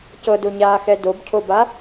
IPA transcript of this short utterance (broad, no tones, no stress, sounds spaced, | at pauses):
c ɤ d o ɲ aː x ɛ d o b cʰ o b a